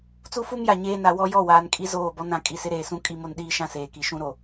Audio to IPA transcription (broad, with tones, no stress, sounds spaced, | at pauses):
t͡s u˦ f u˦ m j a˨ ɲ eː˦ n a˨ w ɔ˦ j ɔ˦˨ w aː˨ n kʼ i˦ z oː˦˨ b ɔ˦ n ã˨ kʼ i˨ s ɪ˦ ɾ eː˨ s ũ˦ kʼ i˦˨ m o˦ n ɗ iː˦ ʃ ã˦ s eː˨ k i˨ ʃ ũ˦ ɾ o˨